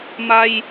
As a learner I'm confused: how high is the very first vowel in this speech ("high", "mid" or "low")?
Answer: low